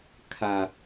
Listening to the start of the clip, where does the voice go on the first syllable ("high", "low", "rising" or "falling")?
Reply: low